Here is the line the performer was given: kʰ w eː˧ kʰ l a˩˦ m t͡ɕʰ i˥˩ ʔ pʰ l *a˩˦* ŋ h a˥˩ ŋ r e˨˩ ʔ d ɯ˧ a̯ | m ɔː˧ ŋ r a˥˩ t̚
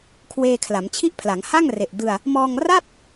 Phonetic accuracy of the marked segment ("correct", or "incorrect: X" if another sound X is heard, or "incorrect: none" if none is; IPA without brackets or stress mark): correct